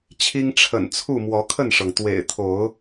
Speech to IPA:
t͡ɕʰ i˦ ŋ ʈ͡ʂʰ ə̰˨˩ n t͡sʰ u˥˨ m w ɔ˨˦ kʰ ə˥˨ n ʂ ɤ˩ ŋ t̪ w ḛ˨˩ ɪ̯ t̪ʰ o˨˦ ʊ̯

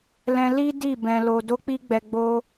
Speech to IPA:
l ɛ̃˧ l i˦ d i˦˨ b ɛ̃˧ l o˧ d o˦ k͡p i˦ ɡ͡b ɛ˧ ɡ͡b o˦

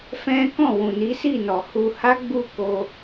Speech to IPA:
f ɛ̃˦ k ɔ̃˦˨ w ũ˨ n i˨˦ s i˦˨ n ɔ˨ h u˧ h a˦ ɡ͡b u˦˨ k o˧

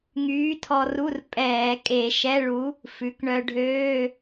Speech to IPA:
ŋ yː˨˥ tʰ ɔ˧ r u˧˥˧ r pʼ ɛː˧˩˧ kʼ e˧˩˧ ʃ ɛ˧˥˧ ɭ u˨˥ | f ʉ˩˧ k ɳ œ˧ ɖʱ øː˧˥˧

